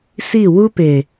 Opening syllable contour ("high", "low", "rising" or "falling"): falling